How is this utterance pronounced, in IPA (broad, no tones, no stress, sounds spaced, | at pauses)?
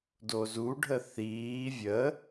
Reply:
d o z u ɖʱ ə θ iː vʲ ə